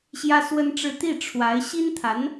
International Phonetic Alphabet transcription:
ɕ j ä˥ s w ə˥ n ʈ͡ʂ ɻ̩˥˧ t̪ i˥˩ ʈ͡ʂʰ w a˧˥ ɪ̯ ɕ i˥ n t̪ʰ a˧˥ n

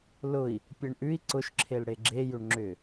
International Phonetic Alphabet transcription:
l ʊ i̯ | pʲ e ɳ ʔ ʉ i̯ ǀ ʊ ʃ ǁʰ e l ɽ e ɡ͡ǁ e j ʏ ɳ ŋ͡ǁ ʏ

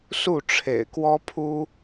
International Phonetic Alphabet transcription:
s u˥˨ ʈ͡ʂʰ ḛ˨˩ ɪ̯ k w ɔ˦ pʰ u˦

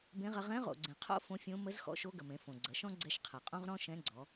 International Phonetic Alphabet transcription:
b ẽ˧˥ ʁ ɐ˧ ʁ ɛ̃˧˥ ʁ o̰˩ ɡ͡ǀ ẽ˩ qʰ o̰˥ f õ˧˥ fʲ õ˧˥ m ə˧˥ z x ɔ̰˧˥ ʃ o˧˥ ɡ ə˩ m ẽ˩˧ f õ˩ ɡ͡ǀ ɐ˩˧ ʃ ɔ̃˥ ɡ͡ǀ ɛ˧ ʃ qʰ ɐ˩ qʼ õ˥ ʁ ɾ ɔ̃˥ ʃ ɛ̃˧˥ ɡ͡ǀ ɔ˩˧

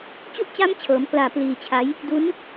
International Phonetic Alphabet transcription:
t͡ɕ u˥˩ ʔ t͡ɕ a˦˥ m t͡ɕʰ ɤː˩˦ m k l aː˨˩ p l iː˧ t͡ɕʰ a˦˥ j | d u˦˥ n

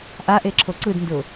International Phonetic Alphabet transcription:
ʔ a ʔ e ǁʰ o ǀ ɯ d n d ʊ

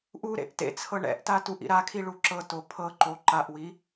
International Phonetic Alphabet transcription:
ʔ u ɾ ḛ ʔ t ḛ t͡sʰ ɤ ɳ ɛ̰ ʔ t a t u ʔ ḭ ɾ a kʰ i ɭ u ǁ ɤ t o pʰ ɤ ǃ o ǃ a ʔ w i

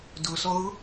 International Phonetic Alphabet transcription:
d ʊ s ɔ ɣ ʊ

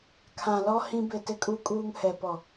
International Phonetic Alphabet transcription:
kʰ ã˨ l ɔ˦ h ĩ˦ b ɪ˦˨ t ɪ˦ kʼ u˦ kʼ uː˦ ŋ h ɛ˨ p ɔ˨

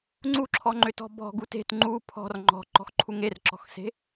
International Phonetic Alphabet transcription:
ŋ͡ǀ u ǁʰ ɔ ŋ͡ǃ ʏ t ɔ̤ b ɔ̤ ɡ u t e̤ t ŋ͡ǃ u pʰ ɔ̤ r ŋ͡ǃ ɔ̤ ǃ ɔ̤ x ǃʰ u ŋ e r ǁ ɔ̤ x s e̤

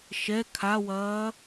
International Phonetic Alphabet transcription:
ʃ ɛ kʰ a w ɐː

